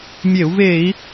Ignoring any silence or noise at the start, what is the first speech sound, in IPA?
mʲ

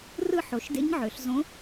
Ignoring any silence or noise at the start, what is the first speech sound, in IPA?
r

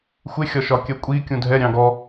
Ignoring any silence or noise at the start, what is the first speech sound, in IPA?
xʷ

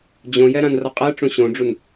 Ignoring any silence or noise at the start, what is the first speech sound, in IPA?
d͡ʑ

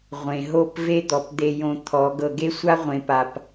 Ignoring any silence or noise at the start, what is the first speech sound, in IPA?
ʁʷ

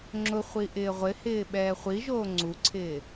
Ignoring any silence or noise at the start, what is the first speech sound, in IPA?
ŋ͡ǁ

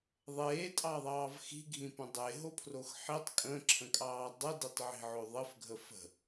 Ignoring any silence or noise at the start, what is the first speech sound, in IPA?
ðˤ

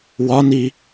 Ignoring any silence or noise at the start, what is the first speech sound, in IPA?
w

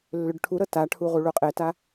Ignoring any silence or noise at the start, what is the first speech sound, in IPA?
lː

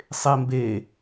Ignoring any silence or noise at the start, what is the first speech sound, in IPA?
sˤ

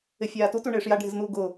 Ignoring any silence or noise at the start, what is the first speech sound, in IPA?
ɪ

